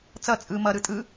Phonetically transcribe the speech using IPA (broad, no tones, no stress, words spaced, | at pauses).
t͡sʌ t͡sʼɯ mʌɾɯ tʼɯ